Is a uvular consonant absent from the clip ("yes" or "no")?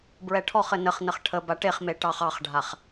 no